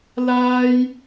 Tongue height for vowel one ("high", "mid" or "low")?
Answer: low